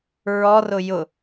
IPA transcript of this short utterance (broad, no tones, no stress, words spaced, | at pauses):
ɹɔrʊ jʊ